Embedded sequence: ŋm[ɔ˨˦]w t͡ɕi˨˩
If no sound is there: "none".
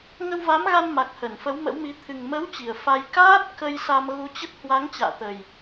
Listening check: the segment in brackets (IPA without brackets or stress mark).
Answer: ə˨˦